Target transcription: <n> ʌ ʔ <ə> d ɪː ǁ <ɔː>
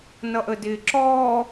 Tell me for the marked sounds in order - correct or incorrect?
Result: correct, correct, correct

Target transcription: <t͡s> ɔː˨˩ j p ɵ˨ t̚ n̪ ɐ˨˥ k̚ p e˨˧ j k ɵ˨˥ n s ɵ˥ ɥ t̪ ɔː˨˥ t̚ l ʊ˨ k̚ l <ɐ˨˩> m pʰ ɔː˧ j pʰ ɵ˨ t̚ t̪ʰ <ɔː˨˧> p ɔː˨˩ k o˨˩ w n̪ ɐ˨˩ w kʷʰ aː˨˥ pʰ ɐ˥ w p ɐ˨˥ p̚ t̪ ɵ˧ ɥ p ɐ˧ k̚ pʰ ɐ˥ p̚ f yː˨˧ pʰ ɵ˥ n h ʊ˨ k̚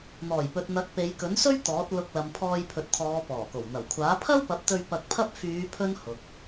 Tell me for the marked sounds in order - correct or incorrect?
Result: incorrect, incorrect, correct

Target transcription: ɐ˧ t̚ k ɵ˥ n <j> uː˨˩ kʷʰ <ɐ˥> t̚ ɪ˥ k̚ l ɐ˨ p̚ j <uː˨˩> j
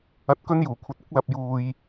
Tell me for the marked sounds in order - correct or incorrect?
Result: correct, incorrect, incorrect

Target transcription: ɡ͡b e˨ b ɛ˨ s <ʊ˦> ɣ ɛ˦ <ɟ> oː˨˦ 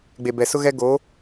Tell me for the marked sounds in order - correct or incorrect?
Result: correct, incorrect

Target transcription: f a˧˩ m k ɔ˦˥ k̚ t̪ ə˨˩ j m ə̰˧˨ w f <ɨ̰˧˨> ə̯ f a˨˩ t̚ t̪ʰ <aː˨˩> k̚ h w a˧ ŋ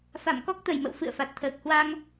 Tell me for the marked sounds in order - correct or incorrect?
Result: correct, incorrect

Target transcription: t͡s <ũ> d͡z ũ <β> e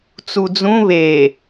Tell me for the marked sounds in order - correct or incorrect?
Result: incorrect, correct

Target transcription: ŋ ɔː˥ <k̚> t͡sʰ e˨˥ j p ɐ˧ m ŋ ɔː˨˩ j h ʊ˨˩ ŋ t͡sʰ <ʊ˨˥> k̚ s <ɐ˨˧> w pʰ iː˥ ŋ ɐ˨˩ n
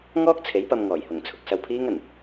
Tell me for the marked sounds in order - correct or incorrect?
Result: correct, incorrect, incorrect

